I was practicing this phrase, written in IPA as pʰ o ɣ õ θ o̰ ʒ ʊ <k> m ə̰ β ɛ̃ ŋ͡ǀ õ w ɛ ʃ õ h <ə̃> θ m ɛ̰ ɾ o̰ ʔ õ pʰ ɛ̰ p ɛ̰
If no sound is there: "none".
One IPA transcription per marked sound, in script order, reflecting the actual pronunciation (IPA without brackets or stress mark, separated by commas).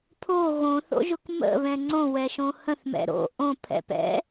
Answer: k, ə̃